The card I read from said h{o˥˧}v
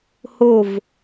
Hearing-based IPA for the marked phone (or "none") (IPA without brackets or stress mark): o˥˧